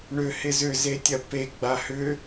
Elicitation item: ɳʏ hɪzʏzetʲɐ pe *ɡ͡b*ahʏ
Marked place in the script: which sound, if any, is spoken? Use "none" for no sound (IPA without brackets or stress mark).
ɡ͡b